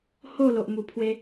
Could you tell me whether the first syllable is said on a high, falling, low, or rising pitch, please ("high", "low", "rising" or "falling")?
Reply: falling